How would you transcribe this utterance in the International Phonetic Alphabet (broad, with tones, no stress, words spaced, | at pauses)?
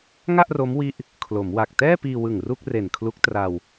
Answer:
ŋa˥˩ʔro˦˥mwi˦˥ʔ | kʰlo˩˦mwa˨˩k̚ tɛː˥˩piː˧wɯ˨˩ŋ ru˥˩k̚re˨˩nkʰlu˦˥k̚ tra˧w